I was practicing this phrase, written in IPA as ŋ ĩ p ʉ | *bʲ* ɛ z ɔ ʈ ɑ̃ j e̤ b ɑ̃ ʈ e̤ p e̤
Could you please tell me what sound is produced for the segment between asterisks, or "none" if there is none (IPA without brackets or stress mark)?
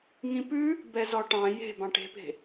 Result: b